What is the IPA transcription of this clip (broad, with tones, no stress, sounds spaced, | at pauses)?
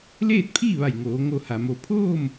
l eː˥˨ t̚ pʰ iː˥˨ ʋ a˧˩ j ŋ oː˩˧ ŋ o˧˩ h a˩ m o˧˩ pʰ oː˥˨ m